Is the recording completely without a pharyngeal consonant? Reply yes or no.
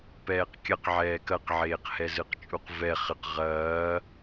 no